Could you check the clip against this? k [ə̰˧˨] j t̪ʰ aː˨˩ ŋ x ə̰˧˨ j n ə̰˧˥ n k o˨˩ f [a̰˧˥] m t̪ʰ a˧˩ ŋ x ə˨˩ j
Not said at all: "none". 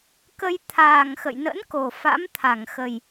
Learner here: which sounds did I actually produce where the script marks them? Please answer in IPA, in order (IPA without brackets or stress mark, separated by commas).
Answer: ə˧, a̰˧˥